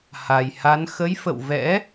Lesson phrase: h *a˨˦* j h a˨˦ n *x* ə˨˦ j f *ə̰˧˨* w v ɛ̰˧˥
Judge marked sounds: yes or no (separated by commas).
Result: no, yes, yes